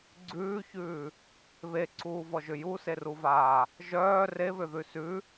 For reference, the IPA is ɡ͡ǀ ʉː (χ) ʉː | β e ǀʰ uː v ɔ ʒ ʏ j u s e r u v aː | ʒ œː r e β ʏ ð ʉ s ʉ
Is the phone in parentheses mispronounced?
yes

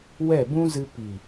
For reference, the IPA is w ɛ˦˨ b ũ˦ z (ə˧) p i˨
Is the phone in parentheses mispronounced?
yes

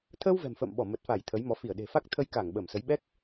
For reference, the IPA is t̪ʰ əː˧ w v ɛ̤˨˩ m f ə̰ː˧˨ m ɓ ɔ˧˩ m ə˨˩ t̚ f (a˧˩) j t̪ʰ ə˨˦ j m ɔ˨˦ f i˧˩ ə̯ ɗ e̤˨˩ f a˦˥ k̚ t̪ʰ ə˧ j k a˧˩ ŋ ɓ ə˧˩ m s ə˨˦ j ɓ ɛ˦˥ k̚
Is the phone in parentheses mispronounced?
no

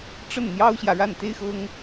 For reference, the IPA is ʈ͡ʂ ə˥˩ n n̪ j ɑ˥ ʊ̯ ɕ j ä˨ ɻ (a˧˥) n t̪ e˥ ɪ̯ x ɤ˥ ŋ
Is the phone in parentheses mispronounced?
yes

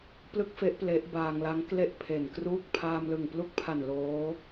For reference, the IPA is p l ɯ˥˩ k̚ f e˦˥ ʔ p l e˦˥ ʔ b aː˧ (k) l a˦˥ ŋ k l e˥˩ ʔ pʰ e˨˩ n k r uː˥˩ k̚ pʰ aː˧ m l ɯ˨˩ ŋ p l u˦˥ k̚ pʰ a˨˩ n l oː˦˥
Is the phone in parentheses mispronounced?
yes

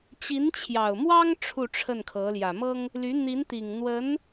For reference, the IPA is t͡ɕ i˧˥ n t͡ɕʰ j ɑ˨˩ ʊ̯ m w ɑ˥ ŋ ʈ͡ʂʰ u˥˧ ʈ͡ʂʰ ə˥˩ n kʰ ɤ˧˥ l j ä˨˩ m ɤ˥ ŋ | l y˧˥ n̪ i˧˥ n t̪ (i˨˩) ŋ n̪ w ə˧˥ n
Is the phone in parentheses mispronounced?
no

